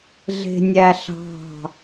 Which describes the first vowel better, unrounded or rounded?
unrounded